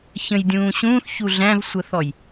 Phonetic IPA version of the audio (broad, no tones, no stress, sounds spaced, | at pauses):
ç ə̃ j dʲ ũː ɕ ũː θ ç u ɮ æ̃ v sʷ ə θ ɔ j